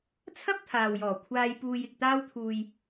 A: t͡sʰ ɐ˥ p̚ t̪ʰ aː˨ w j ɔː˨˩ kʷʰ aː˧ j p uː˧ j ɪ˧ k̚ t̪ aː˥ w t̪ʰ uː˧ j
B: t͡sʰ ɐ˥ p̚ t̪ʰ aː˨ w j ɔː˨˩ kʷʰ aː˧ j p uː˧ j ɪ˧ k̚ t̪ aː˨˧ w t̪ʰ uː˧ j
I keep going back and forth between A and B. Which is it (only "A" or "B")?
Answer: A